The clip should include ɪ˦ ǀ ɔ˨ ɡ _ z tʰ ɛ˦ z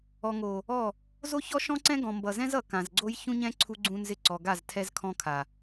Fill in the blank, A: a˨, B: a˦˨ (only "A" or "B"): B